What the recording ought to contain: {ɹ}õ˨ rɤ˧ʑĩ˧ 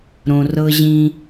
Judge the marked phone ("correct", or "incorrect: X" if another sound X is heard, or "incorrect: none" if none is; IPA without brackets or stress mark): incorrect: ɾ